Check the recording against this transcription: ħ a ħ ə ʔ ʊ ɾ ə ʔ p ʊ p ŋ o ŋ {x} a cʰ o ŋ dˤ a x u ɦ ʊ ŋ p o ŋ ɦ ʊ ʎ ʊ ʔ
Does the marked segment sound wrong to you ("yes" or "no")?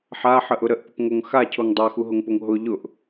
no